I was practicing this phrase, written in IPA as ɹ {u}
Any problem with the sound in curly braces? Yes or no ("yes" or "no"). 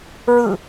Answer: yes